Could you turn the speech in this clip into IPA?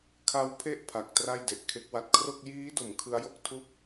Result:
kʰa˦˥wpʰe˥˩ʔ pʰa˨˩k̚tra˥˩jde˨˩ʔkʰe˦˥k̚ wa˨˩t̚kʰro˥˩k̚ jiː˦˥do˩˦m kʰɯ˦˥a̯jo˥˩k̚ tʰu˦˥k̚

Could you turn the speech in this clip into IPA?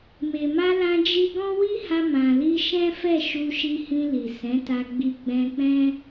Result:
me˨ma˧lã˧ d͡ʒi˧ɡɔ̃˦wi˦ha˧ mã˨li˧ʃɛ̃˦fɛ˦˨ ʃu˧ʃi˧hĩ˧li˨ sɛ̃˨˦ta˧ɡ͡bi˧ ɡ͡bɛ̃˧k͡pɛ̃˦

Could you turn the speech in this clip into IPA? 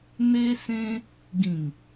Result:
n̪e˦sẽ˦ | ɡĩ˨˩ŋ

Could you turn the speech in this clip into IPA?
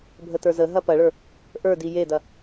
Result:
bʱətə˞zəɦɐ pɐɭə˞ | ʔə˞di jedɐ

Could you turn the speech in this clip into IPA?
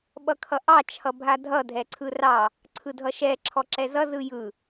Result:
ɓʌkʰʌʔɑ t͡ʃʰʌbʱadʱʌ dʱɛǀʰɯrɑ | ǀʰɯdʱʌʃɛ ǁʰɔǁɛzʌ zɯjɯ

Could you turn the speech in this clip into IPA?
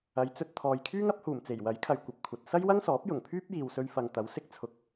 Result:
ɐ˨˧jt͡sɵ˧t̚t̪ʰɔː˨j kʰyː˥ŋɐ˨˥p̚huː˨˩mt͡se˨˩j wɐ˨˥jkʰɐ˨j kʷɐ˨p̚kʷʰɐ˨t̚ sɐ˥jwɐ˥ŋsɔː˨˥p̚ jʊ˨˩ŋpʰyː˥p̚jiː˨wsɵ˧ɥ fɐ˨ŋt̪ɐ˨˥w sɪ˧k̚t͡sʰʊ˨˥k̚

